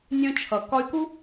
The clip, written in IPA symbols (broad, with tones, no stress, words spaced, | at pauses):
nʲœ̃˧t͡ʃʰʌ˨ kɒ˧y̯ku˦